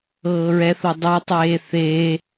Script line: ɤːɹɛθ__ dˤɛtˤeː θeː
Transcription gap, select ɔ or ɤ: ɤ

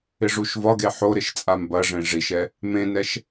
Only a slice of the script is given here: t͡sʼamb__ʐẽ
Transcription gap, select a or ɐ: ɐ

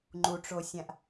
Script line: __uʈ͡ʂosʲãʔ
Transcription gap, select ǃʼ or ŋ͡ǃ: ŋ͡ǃ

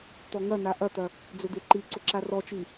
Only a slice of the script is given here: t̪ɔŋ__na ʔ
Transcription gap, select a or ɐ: ɐ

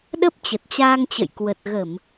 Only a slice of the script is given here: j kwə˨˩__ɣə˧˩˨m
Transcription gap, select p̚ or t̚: t̚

